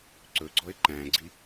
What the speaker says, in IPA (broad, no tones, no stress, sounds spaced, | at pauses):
ǀ ɵ ɡ͡ǀ ɔ ɪ̯ ǃ æ̃ ɡ͡ǀ i